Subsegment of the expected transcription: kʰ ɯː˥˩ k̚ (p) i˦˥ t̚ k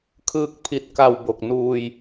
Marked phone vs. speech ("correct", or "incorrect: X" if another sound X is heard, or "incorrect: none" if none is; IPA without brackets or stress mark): incorrect: pʰ